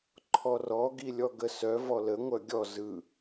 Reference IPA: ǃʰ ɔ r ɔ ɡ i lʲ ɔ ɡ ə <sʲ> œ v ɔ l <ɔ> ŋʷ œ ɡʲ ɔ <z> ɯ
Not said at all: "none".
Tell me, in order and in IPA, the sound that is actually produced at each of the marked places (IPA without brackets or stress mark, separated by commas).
s, ə, z